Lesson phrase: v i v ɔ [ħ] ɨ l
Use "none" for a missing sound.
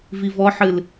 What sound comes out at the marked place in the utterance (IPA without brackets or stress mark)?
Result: ħ